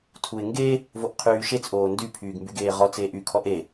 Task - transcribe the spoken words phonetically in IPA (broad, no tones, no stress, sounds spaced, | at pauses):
tʰ u ɪ̯ ŋ ɡ e | v o ʔ qʰ yː ʃ e t͡s ʔ oː n d y pʰ yː ɡ m b y ɡ eː ʁ ɔ t͡s eː ʔ y kʰ ɔ ʔ e